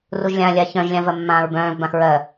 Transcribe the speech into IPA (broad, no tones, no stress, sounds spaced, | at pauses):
r u ʒ lʲ ã lʲ a ç œ̃ ʒ lʲ ã v ɜ mː ãː ɹ b œ̃ː v b ã x ɹ ɜ